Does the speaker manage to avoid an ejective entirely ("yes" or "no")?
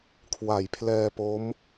yes